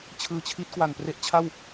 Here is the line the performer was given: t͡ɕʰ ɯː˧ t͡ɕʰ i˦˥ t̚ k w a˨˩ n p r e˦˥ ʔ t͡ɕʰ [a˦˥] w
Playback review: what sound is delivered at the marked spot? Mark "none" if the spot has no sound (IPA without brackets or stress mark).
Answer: a˥˩